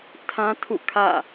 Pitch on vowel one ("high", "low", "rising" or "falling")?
high